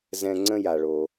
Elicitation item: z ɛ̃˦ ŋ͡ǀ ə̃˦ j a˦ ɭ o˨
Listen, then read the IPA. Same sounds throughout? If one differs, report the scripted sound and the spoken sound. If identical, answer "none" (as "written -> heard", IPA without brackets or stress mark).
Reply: a˦ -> a˨